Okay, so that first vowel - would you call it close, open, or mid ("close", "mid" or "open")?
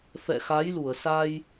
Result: mid